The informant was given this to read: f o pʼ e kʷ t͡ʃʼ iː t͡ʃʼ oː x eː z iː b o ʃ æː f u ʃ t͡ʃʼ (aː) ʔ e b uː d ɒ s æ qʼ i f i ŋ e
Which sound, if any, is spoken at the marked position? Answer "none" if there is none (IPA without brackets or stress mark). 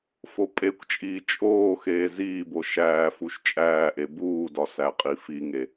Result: æː